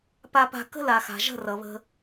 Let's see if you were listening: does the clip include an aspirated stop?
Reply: no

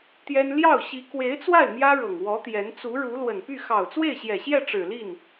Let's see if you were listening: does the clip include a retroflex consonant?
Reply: yes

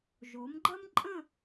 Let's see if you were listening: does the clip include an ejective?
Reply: yes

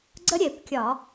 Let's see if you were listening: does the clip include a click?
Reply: yes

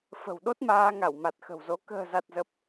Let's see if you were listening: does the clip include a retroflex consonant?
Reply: no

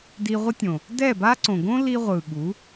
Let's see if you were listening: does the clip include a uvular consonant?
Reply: yes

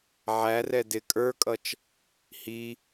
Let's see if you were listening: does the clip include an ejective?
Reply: yes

